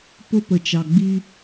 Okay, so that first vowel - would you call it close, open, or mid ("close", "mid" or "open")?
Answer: close